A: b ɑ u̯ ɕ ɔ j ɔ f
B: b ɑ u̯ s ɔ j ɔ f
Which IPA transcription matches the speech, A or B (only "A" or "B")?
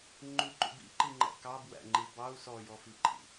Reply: B